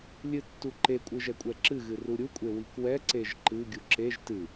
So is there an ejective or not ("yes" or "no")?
yes